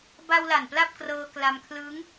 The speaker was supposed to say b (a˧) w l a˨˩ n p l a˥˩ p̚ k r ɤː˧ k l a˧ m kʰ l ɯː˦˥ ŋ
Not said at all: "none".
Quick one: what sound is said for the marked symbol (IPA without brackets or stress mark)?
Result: a˧